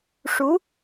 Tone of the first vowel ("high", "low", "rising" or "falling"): rising